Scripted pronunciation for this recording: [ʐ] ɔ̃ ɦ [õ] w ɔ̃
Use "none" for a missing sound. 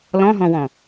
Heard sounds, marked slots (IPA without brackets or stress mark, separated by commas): l, ɔ̃